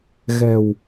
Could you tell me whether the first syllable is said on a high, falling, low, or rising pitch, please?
low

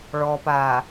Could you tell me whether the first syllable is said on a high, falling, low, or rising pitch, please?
low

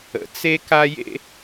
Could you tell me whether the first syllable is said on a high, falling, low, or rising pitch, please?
low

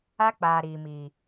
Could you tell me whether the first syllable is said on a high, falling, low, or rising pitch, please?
high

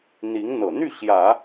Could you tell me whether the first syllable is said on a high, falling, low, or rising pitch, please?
rising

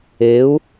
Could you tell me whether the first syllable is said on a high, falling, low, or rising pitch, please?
rising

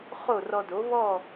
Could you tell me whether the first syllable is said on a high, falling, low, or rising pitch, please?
falling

